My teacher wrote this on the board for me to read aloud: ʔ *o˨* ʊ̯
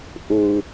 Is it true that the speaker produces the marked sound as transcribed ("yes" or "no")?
yes